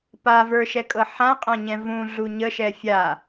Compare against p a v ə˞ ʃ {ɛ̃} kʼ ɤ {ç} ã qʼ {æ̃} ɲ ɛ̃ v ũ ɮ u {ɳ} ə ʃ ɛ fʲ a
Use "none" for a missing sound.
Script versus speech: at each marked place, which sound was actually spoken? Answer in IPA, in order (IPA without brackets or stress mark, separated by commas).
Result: ɛ, ħ, æ̃, ɲ